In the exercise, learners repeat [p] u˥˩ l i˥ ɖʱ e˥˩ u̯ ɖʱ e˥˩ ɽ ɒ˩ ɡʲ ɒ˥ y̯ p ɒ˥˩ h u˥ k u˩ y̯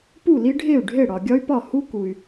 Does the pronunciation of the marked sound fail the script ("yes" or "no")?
no